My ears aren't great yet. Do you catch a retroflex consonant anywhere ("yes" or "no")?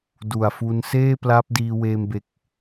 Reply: no